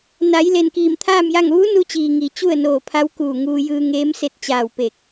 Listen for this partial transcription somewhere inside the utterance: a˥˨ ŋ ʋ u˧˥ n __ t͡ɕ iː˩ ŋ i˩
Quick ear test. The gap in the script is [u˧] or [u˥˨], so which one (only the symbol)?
u˧